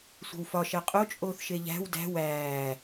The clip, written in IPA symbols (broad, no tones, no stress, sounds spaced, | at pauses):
sʷ e̤ w f ɒ ʃ æ qʼ o t͡ʃʼ oː θ ʃ e ʎ æ̤ w d æ̤ w æː